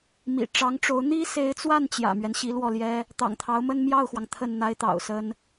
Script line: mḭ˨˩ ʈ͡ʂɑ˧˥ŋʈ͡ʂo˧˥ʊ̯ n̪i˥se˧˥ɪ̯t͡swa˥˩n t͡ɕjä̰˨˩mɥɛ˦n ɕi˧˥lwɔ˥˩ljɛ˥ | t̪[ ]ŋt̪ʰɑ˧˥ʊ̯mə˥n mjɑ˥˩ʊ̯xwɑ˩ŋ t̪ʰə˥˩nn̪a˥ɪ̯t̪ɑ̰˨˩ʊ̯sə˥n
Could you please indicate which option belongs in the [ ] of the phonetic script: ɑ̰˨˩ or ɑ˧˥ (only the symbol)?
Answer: ɑ̰˨˩